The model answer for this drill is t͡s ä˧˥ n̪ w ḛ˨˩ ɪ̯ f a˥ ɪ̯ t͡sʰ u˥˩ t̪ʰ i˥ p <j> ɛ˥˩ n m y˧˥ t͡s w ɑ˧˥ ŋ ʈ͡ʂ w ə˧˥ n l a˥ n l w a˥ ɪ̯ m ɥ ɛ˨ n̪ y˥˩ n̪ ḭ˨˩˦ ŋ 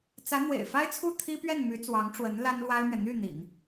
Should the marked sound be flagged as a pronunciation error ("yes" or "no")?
yes